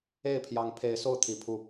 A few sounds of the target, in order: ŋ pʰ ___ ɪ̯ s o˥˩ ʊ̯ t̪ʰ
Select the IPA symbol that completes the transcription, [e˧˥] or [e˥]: e˧˥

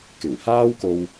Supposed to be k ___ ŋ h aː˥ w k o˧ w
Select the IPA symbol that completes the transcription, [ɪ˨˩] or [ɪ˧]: ɪ˨˩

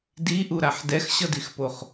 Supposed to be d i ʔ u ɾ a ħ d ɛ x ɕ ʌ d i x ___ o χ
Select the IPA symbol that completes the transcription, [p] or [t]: p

